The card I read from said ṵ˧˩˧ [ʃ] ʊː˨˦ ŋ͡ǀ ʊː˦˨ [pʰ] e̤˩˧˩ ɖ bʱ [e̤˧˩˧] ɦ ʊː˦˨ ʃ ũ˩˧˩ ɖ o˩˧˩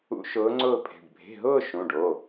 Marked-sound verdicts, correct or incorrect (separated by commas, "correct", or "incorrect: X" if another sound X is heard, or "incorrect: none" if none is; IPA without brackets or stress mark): correct, correct, incorrect: e̤˩˧˩